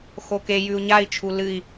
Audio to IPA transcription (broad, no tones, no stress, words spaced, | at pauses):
xoke jʉu̯ɲai̯ t͡ʃʰulɨi̯